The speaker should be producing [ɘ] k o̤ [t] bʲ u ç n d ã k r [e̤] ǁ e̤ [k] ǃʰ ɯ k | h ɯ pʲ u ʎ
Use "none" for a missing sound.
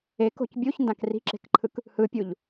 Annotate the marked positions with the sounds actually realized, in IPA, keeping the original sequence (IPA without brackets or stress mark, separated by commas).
e, c, i̤, k